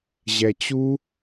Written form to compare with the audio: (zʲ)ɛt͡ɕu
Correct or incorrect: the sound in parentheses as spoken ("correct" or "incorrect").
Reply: incorrect